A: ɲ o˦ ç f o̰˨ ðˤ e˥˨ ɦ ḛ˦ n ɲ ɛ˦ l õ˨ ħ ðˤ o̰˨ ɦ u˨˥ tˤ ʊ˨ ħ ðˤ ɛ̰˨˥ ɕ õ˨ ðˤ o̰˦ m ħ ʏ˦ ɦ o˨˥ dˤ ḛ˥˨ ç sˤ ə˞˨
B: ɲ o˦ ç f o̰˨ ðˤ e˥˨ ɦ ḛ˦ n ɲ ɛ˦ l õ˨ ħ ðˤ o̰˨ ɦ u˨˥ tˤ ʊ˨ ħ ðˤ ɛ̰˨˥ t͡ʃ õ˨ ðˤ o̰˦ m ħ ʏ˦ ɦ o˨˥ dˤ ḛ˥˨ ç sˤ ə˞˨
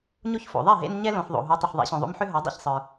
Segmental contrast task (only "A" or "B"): A